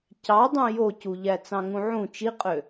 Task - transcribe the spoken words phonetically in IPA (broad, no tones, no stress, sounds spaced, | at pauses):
c ɑ dˤ ũ j o c u ʎ æ t͡s ɑ̃ ŋ ũ ʕ ũ t͡ʃ i qʼ ø